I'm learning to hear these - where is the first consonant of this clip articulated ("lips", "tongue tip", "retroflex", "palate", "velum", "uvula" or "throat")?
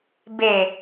lips